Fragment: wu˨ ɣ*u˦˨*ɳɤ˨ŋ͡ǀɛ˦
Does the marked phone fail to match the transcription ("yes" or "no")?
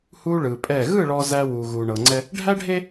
yes